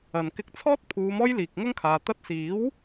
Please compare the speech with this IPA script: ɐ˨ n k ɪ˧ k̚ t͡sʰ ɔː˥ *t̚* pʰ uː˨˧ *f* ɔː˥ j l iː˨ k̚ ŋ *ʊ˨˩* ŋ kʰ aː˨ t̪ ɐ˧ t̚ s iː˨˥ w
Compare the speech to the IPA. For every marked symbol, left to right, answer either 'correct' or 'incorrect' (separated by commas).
correct, incorrect, incorrect